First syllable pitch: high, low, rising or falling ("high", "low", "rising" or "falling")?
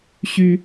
high